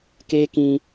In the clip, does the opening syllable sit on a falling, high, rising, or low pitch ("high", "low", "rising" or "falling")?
high